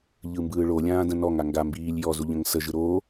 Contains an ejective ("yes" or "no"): no